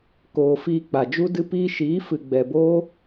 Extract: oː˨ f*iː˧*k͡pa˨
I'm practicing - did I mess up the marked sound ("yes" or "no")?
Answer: no